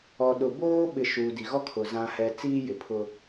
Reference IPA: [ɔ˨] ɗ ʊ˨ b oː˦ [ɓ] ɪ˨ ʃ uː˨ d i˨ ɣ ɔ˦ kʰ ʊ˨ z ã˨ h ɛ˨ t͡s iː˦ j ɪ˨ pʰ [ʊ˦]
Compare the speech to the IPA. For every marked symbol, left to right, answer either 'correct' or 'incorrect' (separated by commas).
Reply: correct, correct, correct